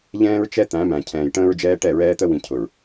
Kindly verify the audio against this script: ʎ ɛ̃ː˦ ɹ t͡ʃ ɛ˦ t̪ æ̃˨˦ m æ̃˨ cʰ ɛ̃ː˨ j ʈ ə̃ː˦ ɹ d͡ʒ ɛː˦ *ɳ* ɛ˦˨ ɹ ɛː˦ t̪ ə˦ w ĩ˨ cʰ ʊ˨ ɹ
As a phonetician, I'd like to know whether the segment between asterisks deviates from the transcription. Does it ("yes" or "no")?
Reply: yes